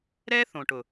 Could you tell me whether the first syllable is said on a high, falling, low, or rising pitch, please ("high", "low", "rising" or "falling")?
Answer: high